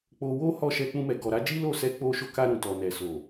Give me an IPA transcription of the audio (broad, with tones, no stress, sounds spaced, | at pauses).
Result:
k͡p o˧ w o˦ h ɔ˦˨ ʃ ɛ˧ k͡p ũ˧ m ɛ˨ ɡ ɔ˨ ɾ a˨˦ d͡ʒ i˦ l o˦˨ s ɛ˧ k͡p o˧ ʃ o˧ k a˧ ɾ ũ˨ t ɔ˨ n ɛ˨ s o˨